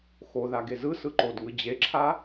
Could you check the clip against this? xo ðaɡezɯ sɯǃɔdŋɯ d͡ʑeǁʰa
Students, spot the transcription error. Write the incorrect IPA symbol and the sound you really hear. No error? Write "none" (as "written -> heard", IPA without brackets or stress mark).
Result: ɔ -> o